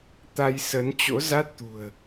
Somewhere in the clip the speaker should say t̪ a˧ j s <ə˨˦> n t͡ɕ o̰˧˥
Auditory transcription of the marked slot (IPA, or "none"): ə˨˦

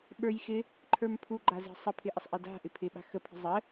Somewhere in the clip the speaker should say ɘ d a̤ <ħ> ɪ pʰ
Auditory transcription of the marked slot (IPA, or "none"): ʔ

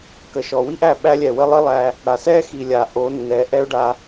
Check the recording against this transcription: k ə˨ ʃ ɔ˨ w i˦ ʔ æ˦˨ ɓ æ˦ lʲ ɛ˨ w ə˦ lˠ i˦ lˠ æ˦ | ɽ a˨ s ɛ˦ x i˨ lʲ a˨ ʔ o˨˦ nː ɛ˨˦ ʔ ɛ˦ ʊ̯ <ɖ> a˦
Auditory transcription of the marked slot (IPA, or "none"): ɖ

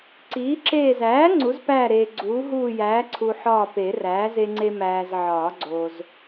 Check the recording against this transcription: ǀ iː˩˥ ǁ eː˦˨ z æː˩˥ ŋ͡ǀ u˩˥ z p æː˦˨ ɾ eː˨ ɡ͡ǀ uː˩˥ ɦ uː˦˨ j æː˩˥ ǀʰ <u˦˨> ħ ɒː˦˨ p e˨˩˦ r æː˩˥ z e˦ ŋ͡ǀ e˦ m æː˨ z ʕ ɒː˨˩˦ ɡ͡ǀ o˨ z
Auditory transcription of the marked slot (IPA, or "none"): u˨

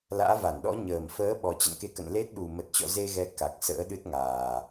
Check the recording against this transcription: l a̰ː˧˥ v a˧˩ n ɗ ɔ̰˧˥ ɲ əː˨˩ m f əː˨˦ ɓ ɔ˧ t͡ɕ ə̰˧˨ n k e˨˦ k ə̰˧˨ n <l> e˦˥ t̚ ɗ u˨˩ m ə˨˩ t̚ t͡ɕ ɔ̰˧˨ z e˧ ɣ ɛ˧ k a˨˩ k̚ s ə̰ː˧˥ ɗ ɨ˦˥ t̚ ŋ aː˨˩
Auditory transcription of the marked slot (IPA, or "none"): l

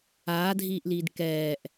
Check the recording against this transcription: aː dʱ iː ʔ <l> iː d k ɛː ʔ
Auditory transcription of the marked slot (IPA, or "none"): l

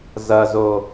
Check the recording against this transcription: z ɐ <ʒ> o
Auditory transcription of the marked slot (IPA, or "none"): z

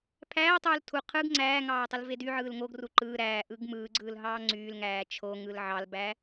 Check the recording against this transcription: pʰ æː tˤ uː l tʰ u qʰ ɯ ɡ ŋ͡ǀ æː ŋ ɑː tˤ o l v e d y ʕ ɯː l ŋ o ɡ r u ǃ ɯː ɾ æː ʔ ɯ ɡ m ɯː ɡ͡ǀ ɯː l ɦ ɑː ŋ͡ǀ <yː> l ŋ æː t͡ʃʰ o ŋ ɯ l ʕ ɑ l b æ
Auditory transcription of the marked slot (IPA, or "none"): yː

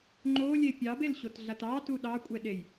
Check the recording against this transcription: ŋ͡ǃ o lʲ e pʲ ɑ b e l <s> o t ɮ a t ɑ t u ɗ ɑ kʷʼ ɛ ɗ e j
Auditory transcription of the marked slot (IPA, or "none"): ɕ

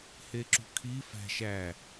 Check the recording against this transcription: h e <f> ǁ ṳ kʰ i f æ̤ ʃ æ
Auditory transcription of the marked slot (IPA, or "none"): none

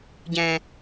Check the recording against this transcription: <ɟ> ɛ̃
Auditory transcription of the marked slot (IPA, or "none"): ɟ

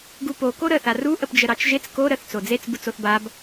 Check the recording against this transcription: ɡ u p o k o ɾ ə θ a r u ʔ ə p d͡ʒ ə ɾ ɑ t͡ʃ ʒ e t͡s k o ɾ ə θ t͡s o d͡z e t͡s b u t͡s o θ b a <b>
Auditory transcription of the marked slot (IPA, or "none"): b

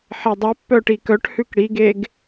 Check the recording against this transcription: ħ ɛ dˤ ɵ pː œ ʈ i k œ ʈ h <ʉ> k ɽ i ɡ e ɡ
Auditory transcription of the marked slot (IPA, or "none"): ʉ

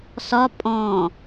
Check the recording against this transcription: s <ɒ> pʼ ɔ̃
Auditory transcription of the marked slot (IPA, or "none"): ɒ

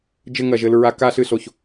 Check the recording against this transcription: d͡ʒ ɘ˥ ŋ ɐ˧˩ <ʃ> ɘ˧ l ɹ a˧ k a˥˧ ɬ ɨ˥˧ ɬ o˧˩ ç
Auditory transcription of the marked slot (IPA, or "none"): ʒ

